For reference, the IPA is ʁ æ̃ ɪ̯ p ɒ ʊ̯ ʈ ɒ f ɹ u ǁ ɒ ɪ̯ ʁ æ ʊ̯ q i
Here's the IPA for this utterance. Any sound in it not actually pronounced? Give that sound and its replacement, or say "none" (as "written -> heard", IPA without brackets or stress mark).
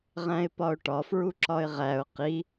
none